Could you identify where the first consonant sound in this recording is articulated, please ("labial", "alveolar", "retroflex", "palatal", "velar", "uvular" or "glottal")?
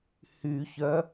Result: glottal